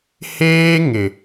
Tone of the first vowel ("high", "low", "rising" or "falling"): high